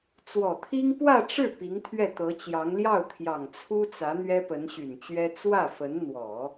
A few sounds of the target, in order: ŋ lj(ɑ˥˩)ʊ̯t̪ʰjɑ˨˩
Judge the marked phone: correct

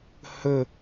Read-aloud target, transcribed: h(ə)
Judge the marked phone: correct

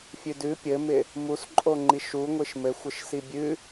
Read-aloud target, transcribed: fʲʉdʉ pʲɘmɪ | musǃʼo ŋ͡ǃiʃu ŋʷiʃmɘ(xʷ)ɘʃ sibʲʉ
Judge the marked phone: correct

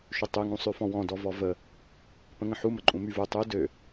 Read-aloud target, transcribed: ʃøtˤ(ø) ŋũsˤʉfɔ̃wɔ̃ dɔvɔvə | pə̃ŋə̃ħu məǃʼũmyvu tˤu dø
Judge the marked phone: correct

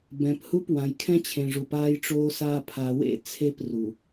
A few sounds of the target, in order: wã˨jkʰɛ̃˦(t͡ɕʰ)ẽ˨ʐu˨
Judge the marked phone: correct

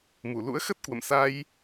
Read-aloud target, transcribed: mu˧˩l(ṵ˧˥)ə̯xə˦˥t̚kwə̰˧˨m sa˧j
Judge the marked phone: correct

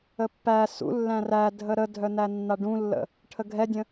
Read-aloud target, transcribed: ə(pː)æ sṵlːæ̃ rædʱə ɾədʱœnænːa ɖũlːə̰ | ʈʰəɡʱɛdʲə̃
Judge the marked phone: correct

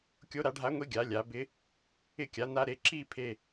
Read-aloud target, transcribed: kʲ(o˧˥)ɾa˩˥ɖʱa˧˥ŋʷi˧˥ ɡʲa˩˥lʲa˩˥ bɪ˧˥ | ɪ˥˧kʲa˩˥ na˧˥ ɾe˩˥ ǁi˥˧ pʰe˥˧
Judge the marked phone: correct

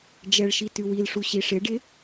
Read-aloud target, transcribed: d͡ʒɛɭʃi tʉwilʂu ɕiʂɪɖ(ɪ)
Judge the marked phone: correct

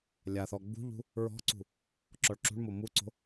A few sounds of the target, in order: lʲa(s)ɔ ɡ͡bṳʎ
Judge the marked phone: incorrect: θ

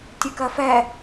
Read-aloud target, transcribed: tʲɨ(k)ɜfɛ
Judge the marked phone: correct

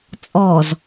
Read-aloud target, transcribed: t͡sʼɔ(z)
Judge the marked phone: correct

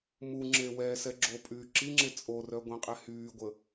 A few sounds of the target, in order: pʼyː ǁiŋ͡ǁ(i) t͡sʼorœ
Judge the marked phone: incorrect: e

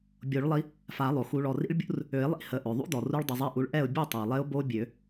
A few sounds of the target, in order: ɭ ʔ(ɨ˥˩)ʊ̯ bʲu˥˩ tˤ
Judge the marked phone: incorrect: ɛ˥˩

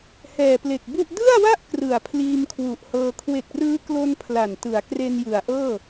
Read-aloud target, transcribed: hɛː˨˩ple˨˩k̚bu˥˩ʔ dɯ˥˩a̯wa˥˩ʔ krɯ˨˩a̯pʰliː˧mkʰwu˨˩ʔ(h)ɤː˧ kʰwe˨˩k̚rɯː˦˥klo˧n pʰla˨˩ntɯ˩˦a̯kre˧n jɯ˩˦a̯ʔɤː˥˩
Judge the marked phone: correct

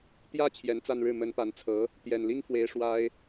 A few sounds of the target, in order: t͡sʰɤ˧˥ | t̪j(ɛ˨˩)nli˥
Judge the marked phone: correct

